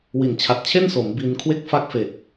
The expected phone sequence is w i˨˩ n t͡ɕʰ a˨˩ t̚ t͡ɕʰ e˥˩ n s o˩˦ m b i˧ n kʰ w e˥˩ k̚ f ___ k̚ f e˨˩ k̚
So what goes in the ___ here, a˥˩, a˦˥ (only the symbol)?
a˦˥